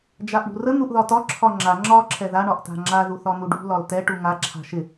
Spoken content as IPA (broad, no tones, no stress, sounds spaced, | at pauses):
d͡ʒ a ʔ ɳ ṳ r ə n̪ u ʔ ð ɒ t ɒ ǁʰ ɒ ŋ͡ǁ a ŋ͡ǁ ɒ ǁʰ ɛ ð a ɳ ɒ ʔ t a̤ ŋ͡ǁ a ð u θ ɒ n̪ u ɖ ṳ l ɒ l t ɛ ʈ u ŋ a ǁʰ a̤ ʃ ɪ